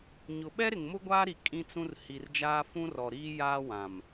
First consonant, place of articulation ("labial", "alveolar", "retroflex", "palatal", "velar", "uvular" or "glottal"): palatal